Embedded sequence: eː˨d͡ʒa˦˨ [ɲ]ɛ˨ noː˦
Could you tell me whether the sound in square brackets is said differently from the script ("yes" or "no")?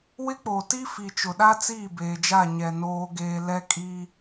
no